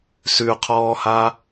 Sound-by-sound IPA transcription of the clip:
s ʉ qʰ ɔː h a

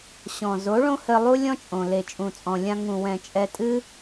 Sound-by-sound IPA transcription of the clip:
ɕ ɔ̃˨ z o˨˦ ɭ õ˦ h ɘ˧ lˠ u˦ lʲ ɔ̃˦ t͡ʃʼ õ˨ l e˨ t͡ʃʼ ũ˨ t͡sʼ ɔ̃˨ lʲ ã˧ ŋ ũ˨ w ɛ̃˨ t͡ʃʼ ɛ˧ tʼ ɨ˦

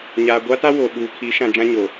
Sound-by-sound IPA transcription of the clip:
ɲ aː˨ ɡʷ a˦ t a˦ w o˨ ɓ uː˨ kʰ i˨˦ ʃ ã˨ d͡ʒ ã˦ ɲ oː˨

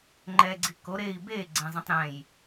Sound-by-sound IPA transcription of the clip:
ŋ͡ǃ ɛ ɡ͡ǀ i k o ɾ e i̯ b e ɡ͡ǀ ẽ zˤ ĩ tˤ ɾ ɛ̃ j

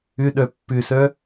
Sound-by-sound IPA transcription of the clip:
ʏ ɗ œ pː ʏ s œ

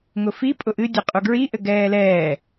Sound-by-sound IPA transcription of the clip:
ŋ ʊ f i pʼ ʊ ʔ ɨ dʲ e qʼ u ɡ ɹ i ʔ ɘ ɡ ɛː l ɛː

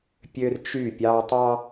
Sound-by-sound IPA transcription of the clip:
pʲ ø˦ r t͡ʃ y˦˨ pʲ ɑ˦ tˤ ɑ˦

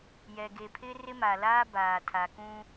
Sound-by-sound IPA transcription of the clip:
j ɛ˨ ɡ e˨ pʰ ɪ˦ r ɪ˦ m a˨ l aː˦ b aː˨ tʰ a˨ k ũ˦

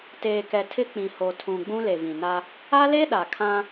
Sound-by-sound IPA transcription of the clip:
t eː˨ k ɛ˨ tʰ ɪ˦ k͡p ĩ˨ h o˨ tʰ ũ˨ ɡ͡b ũ˦ l e˨ v ĩ˨ n a˦ | a˦ l e˦ ɗ a˨ kʰ ã˦

